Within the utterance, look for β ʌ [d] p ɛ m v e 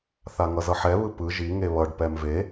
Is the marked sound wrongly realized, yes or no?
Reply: yes